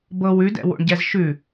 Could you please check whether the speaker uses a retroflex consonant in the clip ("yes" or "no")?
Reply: yes